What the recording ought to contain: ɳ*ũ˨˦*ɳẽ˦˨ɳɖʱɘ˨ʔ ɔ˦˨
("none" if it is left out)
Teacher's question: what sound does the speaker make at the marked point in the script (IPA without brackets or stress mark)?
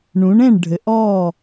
ũ˨˦